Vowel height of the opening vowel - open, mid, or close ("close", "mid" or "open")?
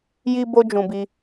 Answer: close